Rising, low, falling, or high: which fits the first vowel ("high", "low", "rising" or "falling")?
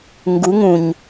rising